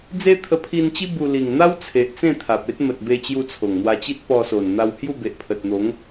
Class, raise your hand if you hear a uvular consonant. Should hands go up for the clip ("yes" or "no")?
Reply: no